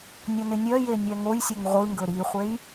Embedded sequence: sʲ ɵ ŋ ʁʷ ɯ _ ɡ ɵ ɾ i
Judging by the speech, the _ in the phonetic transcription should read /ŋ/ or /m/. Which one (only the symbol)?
ŋ